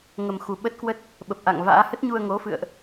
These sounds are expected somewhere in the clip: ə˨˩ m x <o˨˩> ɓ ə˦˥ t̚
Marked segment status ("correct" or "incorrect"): incorrect